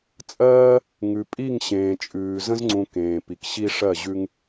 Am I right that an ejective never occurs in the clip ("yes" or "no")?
no